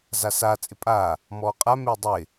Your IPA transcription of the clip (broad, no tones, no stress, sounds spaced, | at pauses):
z a s a t͡sʼ ɪ pʼ aː | m ɔː qʼ a m ɪː dˤ ɪː